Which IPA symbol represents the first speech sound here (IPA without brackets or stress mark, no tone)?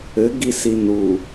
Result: ɘ